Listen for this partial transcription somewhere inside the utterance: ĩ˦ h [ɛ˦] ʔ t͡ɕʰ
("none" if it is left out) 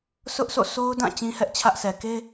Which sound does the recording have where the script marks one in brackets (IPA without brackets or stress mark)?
ɛ˦